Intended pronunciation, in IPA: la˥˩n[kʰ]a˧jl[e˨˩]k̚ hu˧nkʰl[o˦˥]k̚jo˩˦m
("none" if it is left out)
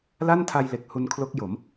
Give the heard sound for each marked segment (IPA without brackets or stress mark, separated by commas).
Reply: tʰ, e˨˩, o˦˥